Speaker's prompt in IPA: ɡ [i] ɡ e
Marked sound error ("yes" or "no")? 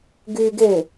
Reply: yes